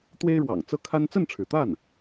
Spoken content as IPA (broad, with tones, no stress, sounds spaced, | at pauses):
t̪ w e˥ ɪ̯ ɻ w ɑ̰˨˩ ŋ t͡s ɤ˥ kʰ a˥ n t͡s ə˥˩ n ʈ͡ʂʰ ɻ̩˩ t̪ a˥˩ n